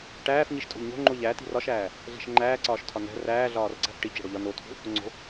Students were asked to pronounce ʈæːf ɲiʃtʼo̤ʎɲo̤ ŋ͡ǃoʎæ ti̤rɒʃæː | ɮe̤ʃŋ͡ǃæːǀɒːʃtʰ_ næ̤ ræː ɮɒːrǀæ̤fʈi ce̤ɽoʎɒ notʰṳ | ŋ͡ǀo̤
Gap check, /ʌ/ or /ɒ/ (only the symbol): ɒ